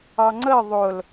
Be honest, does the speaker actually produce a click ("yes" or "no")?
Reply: yes